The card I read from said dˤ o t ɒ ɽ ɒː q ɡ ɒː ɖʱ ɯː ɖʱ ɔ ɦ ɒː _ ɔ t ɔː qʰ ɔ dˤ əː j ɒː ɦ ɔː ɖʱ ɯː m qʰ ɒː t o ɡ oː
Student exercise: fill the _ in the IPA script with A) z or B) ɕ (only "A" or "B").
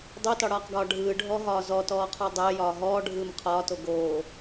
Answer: A